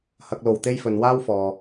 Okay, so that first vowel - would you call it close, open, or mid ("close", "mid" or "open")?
open